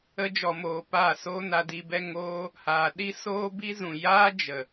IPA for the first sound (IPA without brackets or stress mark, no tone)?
ə